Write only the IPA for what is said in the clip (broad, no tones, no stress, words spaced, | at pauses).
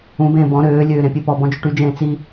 ũbẽː bɔ̃ ɾøːlʲøː ɾẽpʲepɔbɔ̃ d͡ʒuʈyd͡ʒẽː t͡si